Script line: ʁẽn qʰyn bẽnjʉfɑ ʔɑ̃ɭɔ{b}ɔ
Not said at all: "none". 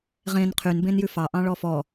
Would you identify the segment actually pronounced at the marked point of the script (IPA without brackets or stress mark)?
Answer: f